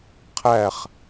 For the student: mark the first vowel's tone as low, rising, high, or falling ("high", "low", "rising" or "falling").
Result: falling